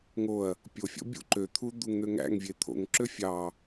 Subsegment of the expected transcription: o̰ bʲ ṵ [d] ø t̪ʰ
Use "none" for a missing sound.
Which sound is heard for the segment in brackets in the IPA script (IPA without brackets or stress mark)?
ǃ